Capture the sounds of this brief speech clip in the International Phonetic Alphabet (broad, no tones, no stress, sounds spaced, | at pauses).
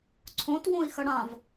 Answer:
ǀʰ õ t w õ i̯ x ə ɽ ã v